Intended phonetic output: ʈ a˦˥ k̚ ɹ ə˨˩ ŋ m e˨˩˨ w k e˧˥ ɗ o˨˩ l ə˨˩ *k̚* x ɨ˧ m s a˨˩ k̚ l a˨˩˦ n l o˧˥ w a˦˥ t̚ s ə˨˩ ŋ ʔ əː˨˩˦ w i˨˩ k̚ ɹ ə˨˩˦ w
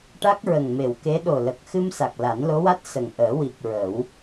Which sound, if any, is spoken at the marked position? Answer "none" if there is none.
k̚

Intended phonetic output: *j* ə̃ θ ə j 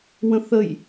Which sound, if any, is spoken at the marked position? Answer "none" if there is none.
w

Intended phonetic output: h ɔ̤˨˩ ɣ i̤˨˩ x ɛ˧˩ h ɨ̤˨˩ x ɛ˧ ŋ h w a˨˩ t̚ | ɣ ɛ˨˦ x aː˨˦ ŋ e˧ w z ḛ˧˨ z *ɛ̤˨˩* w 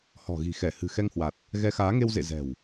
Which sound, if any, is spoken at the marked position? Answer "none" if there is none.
ɛ̤˨˩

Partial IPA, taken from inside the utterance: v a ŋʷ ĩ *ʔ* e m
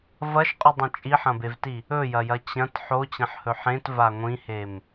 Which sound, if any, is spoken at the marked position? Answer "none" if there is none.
h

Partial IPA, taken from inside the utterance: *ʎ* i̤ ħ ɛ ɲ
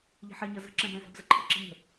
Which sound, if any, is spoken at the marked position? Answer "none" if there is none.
ʎ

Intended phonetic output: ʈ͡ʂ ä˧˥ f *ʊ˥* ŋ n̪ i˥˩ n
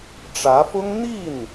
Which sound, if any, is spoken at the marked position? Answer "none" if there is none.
ʊ˥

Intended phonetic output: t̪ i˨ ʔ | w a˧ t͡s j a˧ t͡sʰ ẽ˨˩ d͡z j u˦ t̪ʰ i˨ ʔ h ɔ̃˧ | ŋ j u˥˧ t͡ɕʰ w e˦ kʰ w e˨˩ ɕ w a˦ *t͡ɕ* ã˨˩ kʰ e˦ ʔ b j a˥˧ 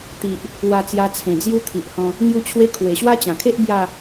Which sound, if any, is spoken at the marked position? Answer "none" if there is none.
t͡ɕ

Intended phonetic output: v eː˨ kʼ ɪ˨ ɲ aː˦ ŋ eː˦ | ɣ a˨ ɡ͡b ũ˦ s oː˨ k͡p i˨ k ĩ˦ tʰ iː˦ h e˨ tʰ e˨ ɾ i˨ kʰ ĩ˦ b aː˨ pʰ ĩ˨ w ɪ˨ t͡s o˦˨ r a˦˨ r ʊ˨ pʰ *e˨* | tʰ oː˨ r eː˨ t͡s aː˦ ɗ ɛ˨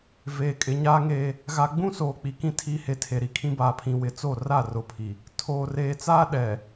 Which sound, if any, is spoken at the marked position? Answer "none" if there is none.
i˨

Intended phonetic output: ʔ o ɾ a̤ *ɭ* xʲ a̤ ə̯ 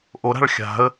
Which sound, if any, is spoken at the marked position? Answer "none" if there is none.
ɭ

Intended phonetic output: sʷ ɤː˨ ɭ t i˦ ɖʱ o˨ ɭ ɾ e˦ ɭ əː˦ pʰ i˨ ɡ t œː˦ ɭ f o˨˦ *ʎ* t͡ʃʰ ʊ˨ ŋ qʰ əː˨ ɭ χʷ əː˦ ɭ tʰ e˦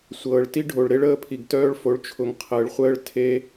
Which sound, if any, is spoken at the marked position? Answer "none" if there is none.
ɭ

